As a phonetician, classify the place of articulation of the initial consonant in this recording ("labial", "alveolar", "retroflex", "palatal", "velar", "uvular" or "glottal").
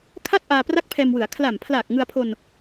velar